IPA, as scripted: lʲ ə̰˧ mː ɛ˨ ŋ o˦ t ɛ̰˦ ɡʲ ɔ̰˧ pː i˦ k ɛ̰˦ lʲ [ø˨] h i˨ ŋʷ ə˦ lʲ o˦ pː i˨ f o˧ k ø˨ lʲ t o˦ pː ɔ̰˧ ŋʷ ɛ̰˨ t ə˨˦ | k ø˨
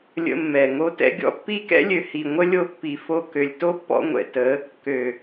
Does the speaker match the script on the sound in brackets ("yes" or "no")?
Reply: yes